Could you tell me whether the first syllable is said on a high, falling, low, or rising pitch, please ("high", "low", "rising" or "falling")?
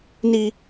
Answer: high